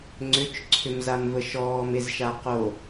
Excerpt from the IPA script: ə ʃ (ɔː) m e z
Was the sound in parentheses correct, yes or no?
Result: yes